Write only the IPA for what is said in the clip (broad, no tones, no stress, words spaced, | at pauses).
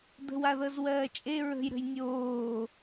d̪ə̤waðɤz wɜːt͡ʃʼe ɹə̤j ɾə̤jnʲoː